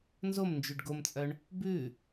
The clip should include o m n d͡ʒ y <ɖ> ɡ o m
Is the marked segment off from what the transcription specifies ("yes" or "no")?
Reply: no